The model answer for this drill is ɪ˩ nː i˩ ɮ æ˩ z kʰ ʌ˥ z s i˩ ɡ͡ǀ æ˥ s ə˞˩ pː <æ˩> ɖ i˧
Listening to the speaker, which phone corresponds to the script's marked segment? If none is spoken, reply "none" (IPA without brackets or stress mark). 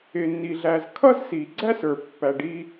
æ˩